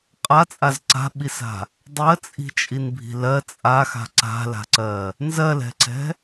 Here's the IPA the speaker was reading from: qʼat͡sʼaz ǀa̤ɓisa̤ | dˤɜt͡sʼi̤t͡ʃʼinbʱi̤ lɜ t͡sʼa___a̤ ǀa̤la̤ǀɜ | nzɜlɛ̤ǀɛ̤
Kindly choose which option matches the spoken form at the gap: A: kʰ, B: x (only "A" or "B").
B